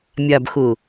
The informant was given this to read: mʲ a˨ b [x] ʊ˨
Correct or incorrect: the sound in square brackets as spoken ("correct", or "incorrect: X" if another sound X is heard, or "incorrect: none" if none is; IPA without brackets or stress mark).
correct